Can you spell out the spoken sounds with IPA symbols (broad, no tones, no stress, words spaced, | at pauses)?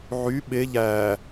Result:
ʕy ɓe ʎæː